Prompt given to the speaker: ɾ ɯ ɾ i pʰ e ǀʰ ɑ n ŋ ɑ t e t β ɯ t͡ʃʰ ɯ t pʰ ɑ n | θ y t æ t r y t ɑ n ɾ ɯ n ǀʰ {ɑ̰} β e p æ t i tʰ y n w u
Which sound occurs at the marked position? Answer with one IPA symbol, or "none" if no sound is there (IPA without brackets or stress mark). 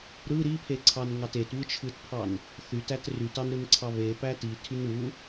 ɑ